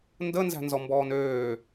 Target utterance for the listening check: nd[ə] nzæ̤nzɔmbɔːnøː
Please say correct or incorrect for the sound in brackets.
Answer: correct